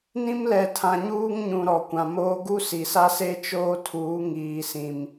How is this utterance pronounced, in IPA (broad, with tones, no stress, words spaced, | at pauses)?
nĩ˦mlɛ˨tʰã˨ ɲuː˦ŋɲũ˨ ɾɔ˨kʷã˨moː˦ ɡu˦si˨sa˦se˦ t͡ʃoː˦tʰuː˨˦ ŋiː˨sĩ˨m